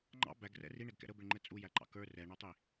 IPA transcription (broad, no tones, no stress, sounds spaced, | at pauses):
ŋ͡ǃ ɑ̰ b æ ɡ r ɛ̰ r i ɳ ɛ ɡ k ɛ̰ ɾ ə b ɪ ɳ ŋ͡ǃ ɛ t͡sʼ u j æ ǃ ɑ̰ k ə˞ r ɛ ɳ ɔ tˤ i